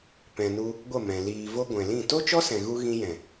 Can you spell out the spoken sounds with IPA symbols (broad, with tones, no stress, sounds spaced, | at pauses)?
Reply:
p ɛ̃˨ n u˧ | ɡʷ ə˦˨ m ɛ̃˨ l iː˨ v o˧ ɡʷ ɛ̃˨ l ĩ˦˨ t o˦ t͡ʃ ɔ˦ s ɛ̃˨ ɣ u˧ ɣ ĩ˧ j ɛ̃˨